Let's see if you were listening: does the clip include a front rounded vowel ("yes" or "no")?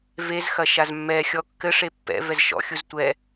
no